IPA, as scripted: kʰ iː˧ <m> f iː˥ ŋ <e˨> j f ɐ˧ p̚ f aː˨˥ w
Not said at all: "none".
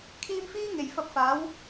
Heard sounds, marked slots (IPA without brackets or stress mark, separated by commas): m, e˨˩